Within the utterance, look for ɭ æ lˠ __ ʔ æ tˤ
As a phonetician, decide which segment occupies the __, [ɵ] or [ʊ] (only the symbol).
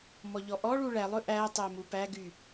ɵ